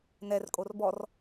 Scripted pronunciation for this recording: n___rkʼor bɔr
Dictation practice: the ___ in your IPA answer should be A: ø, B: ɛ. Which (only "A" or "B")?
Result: B